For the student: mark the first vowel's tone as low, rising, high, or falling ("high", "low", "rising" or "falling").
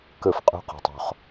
falling